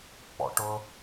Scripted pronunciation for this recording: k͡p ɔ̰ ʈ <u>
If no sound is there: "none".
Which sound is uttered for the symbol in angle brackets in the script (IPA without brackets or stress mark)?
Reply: ʊ